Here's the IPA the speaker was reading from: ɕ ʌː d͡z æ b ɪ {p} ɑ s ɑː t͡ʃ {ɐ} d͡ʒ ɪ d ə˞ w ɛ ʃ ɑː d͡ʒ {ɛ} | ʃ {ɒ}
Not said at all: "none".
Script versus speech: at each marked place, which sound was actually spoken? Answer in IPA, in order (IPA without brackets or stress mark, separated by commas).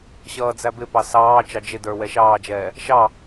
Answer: p, ɑ, ɛː, ɑ